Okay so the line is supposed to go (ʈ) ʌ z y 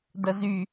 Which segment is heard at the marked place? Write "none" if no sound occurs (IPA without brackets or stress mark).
d